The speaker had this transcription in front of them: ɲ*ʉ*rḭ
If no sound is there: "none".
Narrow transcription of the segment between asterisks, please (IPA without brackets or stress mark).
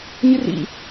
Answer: ɨ